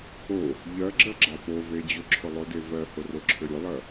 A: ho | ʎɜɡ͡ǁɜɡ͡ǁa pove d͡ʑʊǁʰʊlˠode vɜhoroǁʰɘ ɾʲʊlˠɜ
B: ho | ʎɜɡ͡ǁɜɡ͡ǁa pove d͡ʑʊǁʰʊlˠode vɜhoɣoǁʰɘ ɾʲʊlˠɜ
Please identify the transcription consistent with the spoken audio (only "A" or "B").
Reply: A